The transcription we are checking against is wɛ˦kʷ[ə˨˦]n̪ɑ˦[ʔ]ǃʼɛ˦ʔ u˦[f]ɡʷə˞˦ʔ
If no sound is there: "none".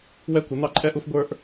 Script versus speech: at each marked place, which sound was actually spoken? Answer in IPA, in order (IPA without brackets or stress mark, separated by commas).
ə˨˦, none, f